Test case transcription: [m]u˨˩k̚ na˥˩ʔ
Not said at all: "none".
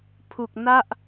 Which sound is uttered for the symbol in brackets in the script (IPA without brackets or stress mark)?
pʰ